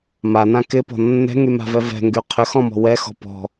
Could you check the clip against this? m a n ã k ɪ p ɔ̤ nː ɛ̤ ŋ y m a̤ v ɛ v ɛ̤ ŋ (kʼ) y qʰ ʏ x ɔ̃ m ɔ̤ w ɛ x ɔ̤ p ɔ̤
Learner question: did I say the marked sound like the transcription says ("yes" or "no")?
no